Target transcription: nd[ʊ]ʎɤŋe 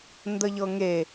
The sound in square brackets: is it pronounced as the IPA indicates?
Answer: no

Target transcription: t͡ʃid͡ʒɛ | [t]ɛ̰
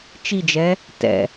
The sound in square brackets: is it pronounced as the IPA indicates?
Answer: yes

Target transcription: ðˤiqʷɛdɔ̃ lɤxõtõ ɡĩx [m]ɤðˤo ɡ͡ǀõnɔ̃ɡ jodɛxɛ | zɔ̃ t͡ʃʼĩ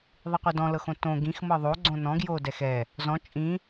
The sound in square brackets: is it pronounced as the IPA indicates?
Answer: yes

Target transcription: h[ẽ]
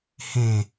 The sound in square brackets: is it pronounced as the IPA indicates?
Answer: yes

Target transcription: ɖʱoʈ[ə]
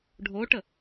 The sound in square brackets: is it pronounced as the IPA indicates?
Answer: yes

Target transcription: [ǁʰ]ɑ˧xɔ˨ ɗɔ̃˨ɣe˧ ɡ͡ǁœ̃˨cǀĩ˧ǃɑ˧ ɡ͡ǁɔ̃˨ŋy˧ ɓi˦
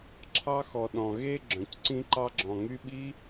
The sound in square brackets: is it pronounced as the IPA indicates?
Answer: yes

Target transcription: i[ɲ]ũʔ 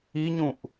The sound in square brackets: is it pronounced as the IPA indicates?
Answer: yes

